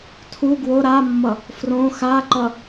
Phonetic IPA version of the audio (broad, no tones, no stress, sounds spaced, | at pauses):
tʰ u ɡ w o ɾ a mː ʌ | f r õ x a ǃ ʌ